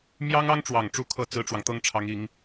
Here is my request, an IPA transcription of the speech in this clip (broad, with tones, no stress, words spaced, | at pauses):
mjɑ˥ŋɑ˥ŋʈ͡ʂwɑ˨˩ŋʈ͡ʂu˧˥ kʰɤ˥˩ t͡sɹ̩˥ʈ͡ʂwɑ˨ŋ t̪ɤ˥˩ŋʈ͡ʂʰɑ˧˥ŋ i˧˥ŋ